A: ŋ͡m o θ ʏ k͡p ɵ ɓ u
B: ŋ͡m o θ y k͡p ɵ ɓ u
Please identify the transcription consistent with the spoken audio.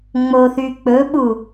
B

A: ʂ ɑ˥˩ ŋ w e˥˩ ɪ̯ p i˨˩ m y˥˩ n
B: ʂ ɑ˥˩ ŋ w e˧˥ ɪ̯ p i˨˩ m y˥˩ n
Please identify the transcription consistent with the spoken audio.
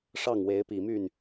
B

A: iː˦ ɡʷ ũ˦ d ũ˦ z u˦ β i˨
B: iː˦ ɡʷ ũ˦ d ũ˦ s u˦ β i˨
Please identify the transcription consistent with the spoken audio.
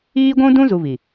A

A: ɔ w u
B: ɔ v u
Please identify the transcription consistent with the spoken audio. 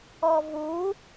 B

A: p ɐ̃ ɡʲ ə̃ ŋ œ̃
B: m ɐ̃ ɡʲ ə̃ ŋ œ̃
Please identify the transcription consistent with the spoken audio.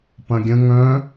A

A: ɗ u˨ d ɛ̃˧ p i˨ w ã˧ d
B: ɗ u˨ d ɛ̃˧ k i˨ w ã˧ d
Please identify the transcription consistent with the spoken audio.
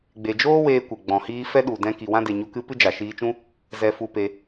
B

